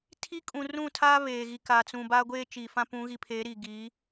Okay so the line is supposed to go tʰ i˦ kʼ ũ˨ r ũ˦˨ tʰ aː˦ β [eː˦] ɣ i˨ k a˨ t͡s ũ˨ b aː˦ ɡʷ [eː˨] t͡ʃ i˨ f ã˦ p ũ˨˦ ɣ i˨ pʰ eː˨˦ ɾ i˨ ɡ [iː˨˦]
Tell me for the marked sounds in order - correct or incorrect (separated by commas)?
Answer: incorrect, incorrect, correct